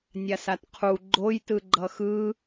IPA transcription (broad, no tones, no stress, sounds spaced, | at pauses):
nʲ a s a t qʰ u ɡ͡ǃ o j t ɯ ɡ͡ǃ ʌ x ɯ